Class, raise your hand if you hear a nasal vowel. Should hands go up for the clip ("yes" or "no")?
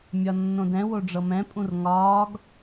yes